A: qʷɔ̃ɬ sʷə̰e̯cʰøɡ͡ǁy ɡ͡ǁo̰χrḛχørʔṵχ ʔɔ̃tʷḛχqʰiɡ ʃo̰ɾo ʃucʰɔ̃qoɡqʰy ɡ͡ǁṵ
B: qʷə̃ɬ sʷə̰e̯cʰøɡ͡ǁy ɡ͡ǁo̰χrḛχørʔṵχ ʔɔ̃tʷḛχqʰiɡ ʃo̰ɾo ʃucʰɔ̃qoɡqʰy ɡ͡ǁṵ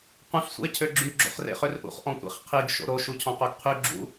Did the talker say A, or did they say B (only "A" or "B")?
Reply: B